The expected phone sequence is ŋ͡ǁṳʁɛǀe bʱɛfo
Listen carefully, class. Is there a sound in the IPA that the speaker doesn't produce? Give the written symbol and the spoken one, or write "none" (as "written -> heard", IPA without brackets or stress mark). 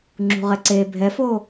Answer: none